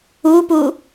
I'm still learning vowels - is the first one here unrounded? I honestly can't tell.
no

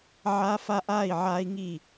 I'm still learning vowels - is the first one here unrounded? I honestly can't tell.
yes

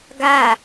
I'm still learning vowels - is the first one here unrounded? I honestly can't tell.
yes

